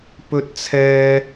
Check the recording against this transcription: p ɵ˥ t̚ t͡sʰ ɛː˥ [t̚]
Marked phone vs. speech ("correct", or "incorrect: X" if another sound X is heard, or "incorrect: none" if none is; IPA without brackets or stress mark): incorrect: none